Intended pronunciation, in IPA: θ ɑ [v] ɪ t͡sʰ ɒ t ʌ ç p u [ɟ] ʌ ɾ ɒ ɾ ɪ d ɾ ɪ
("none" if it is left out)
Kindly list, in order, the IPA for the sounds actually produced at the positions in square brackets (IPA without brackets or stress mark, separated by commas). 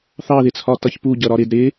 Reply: ð, ɟ